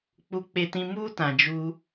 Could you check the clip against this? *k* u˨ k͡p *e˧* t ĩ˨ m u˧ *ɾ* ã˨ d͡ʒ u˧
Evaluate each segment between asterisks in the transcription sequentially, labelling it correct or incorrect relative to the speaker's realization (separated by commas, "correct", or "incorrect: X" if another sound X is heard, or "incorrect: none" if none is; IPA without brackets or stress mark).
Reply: incorrect: k͡p, incorrect: e˨, incorrect: t